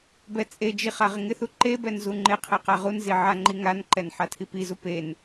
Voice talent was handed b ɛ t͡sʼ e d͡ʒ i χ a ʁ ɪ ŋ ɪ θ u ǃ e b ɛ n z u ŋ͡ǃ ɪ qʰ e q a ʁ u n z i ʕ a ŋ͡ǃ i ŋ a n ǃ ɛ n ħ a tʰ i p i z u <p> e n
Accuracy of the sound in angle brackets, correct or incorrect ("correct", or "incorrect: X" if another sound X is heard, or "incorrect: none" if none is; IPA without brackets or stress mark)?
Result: correct